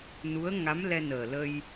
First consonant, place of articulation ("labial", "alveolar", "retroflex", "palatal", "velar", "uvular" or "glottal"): alveolar